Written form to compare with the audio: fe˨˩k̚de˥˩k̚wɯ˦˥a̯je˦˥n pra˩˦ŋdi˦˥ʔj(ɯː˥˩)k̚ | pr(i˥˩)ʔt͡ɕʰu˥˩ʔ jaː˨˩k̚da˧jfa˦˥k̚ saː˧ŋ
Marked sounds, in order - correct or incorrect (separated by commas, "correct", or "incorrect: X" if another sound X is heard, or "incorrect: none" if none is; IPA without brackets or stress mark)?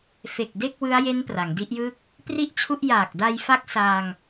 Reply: incorrect: ɯ˥˩, correct